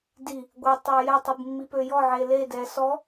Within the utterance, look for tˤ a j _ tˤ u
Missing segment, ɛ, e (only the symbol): ɛ